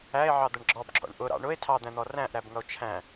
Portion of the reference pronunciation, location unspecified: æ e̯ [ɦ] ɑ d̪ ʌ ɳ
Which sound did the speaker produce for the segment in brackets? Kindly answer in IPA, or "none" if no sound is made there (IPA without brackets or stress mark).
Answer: ʕ